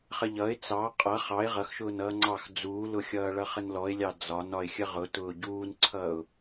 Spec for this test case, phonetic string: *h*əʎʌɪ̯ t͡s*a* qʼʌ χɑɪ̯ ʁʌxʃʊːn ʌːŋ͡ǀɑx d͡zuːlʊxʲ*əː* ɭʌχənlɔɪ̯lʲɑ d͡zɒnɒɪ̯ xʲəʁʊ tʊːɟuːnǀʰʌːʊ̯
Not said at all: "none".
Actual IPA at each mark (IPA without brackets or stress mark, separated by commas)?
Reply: χ, ɑ, ʌː